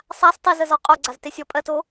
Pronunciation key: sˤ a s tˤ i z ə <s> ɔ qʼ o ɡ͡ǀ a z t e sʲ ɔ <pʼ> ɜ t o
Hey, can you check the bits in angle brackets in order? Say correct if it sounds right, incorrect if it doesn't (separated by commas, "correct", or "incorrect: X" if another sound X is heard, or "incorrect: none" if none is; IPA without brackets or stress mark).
incorrect: z, correct